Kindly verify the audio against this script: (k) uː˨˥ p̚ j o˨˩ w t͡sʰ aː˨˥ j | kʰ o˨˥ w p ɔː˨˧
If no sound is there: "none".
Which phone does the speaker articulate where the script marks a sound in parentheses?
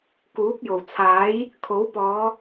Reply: k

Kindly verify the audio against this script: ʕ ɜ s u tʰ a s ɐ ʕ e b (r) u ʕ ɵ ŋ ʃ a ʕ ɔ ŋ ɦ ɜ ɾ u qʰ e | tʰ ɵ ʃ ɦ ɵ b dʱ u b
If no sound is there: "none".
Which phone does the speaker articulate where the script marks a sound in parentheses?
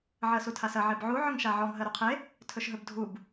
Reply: ʕ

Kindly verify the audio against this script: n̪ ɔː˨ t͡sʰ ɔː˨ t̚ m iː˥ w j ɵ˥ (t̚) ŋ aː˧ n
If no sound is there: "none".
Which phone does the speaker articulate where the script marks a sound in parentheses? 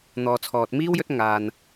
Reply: t̚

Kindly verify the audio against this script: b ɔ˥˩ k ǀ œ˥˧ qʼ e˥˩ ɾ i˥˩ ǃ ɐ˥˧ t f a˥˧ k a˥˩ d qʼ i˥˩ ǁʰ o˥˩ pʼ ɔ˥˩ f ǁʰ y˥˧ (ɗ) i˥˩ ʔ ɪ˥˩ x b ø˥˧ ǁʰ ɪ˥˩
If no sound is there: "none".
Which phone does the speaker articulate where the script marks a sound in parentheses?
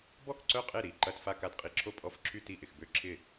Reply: t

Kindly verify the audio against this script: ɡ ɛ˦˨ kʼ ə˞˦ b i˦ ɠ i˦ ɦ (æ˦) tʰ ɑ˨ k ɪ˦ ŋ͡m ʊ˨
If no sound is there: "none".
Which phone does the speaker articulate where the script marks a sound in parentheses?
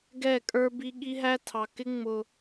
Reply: æ˦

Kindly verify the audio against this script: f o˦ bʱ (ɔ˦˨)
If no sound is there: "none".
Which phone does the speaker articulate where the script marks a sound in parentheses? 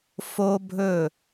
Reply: ɵ˦˨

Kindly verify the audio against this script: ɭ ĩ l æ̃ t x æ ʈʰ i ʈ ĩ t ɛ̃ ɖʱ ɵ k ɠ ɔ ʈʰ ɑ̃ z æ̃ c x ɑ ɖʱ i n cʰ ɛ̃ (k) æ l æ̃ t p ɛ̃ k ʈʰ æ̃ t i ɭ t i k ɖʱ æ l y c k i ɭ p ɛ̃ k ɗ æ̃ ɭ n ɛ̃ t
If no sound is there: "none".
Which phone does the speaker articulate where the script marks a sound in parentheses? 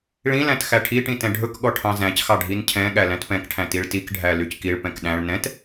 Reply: ɠ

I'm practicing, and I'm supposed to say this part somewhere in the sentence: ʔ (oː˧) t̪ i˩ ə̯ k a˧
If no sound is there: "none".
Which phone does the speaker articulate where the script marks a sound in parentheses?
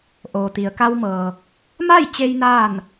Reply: oː˩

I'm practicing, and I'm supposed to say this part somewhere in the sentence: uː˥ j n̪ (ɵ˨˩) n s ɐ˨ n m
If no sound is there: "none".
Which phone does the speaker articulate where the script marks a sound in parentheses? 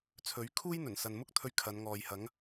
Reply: ɵ˨˩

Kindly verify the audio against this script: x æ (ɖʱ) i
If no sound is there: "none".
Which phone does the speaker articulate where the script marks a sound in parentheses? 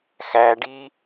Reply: ɖ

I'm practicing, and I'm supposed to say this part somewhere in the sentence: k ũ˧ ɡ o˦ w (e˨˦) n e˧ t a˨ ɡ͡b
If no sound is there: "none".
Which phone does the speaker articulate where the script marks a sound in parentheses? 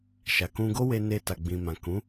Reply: e˧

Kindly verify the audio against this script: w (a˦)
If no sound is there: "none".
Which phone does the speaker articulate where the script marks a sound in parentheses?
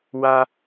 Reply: a˦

